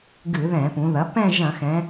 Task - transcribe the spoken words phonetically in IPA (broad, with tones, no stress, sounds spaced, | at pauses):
ɡ ɨ˧˩˧ ð ɛ̃˧˩˧ p ũ˩˧ ð ɐ˩˥ p ɛ̃˥˧ ʒ ɐ̃˧˩˧ x ɛ̃˩˧